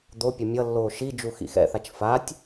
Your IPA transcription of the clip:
d̪ o pʲ ʌ mʲ ʌ lː oː ʃ i d͡ʒ u x ḭ x ɛ̰ θ a t͡ʃ f a tʲ

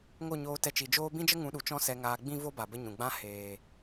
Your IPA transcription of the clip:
ŋ o˦˨ ɲ oː˧ t ɛ˧ t͡ʃ i˨ d͡ʒ oː˦ b ĩ˦ d͡ʒ ə˦ ŋ ũ˨˦ ɗ u˨ t͡ʃ ɔ̃˦ s ɛ˧ ŋ aː˧ ɡ͡b ĩ˦ v o˦ b a˨ b ə˦ ɲ ũ˨ ɡ͡b ã˦ h eː˨

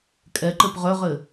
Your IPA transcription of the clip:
kʼ ɛ ǃ ɘ p ʁ œ ʁ ɘ

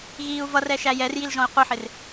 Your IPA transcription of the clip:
ɣ iː u̯ v ʌ r ɛ ʃ æ j ɛ r j i l ʒ ɔ̃ i̯ qʷ ɪ ħ ɪ r

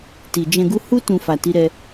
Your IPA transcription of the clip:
t i˨ d͡ʒ ɛ̃˧ ɡ u˦ h u˦ t ũ˧ f a˨ t i˨˦ ɾ ɛ˧

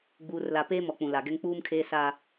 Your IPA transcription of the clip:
ɡ͡b uː˨ r l a˨ p eː˦ m ɔ˨ k͡p ũ˨ l a˨ ɡ ɛ˦ ŋ k͡p uː˦ m kʰ eː˦ s a˦

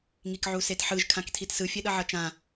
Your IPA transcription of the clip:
ŋ i k ʕ u s e t ħ ɯ ʒ kʰ ã k tʰ i t s ɯ fʲ ɛ ɗ ʌ ʕ ʌ t͡ʃ ã

